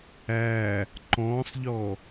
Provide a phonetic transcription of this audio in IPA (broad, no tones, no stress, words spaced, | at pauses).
æː | ǃɔ̃ːsˤʎɔː